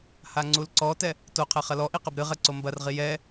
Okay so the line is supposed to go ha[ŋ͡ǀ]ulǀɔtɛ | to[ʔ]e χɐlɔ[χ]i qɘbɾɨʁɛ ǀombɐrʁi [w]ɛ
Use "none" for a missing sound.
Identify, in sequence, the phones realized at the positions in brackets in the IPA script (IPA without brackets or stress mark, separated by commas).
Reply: ŋ͡ǀ, qʰ, ʔ, j